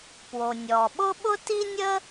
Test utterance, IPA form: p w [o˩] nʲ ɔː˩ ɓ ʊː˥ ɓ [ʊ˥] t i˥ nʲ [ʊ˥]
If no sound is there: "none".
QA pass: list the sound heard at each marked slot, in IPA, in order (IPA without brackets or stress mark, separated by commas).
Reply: o˩, ʊ˥, ə˥